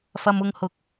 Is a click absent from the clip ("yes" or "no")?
yes